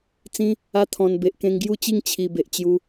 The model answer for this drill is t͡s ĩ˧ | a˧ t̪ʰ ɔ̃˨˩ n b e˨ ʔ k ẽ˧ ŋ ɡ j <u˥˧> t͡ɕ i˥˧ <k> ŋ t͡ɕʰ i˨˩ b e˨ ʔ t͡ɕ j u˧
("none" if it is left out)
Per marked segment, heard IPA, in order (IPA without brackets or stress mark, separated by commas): u˥˧, none